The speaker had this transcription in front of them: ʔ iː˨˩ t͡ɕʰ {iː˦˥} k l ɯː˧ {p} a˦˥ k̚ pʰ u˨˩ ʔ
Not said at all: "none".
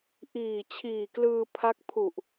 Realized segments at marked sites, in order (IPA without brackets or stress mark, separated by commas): iː˨˩, pʰ